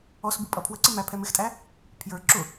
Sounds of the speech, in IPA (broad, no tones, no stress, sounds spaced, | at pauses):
ɔ s b u pʼ ʌ pʰ w ə ǀ ɪ m æ pʰ ɛ m ɪ x tʼ æ | pʰ j ə˞ ǁ ʊ